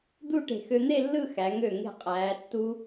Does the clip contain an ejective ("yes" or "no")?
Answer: yes